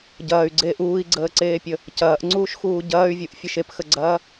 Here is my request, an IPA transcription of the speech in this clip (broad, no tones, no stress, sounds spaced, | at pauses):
ɟ ɐː y̯ ɡ͡ǀ eː ʔ uː i̯ ɡ͡ǀ əː ǀ eː pʲ ə | c ɐː ʔ ŋ͡ǀ uː ʃ x uː ɟ ɐː y̯ vʲ u ʔ fʲ ə ʃ e p x ə ɡ͡ǀ ɐː